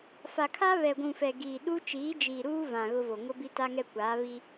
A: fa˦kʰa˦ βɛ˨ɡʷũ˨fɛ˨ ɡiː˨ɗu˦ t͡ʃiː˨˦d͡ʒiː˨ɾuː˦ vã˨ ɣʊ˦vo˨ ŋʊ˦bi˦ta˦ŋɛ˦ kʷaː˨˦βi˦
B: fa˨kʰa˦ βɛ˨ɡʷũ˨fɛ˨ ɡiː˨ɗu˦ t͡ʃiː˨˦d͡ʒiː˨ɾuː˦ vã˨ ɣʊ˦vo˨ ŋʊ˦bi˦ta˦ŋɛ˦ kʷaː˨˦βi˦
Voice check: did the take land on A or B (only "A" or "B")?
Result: B